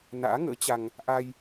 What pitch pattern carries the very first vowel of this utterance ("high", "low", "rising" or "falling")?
rising